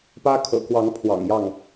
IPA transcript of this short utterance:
p ä˦ kʰ ɤ̰˨˩ k w ɑ˨˦ ŋ pʰ w ɑ̰˨˩ ŋ j ɑ˥˨ ŋ

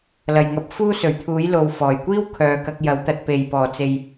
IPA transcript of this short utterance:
l ɐ˨˩ j ŋ ɐ˨ p̚ f uː˥ s ɵ˨˩ ɥ t̪ʰ uː˨˥ j l o˨ w f ɔː˨˩ j kʷ iː˥ w kʰ œː˨ k ɐ˧ k̚ j ɐ˨˥ w t̪ ɐ˧ t̚ p e˨ j p ɔː˨˩ t͡s e˨ j

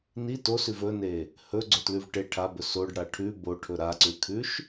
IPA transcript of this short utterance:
n i t o s ʉ v ɵ n e | h ɵ ɡ͡ǀ o t l ʉ v ʈ e ʈʰ a b ɵ s o ɖ ɽ a ʈʰ ʉ b o ʈʰ ɵ ɾ a ǀ ʉ kʰ ʉ ʃ

